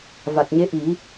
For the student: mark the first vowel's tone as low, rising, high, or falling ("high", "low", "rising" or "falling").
low